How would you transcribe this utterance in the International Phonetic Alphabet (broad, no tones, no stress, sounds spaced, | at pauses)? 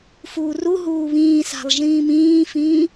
f uː r u ɦ uː β ĩː s a̤ lˠ ʒ ĩː m ĩː f ĩː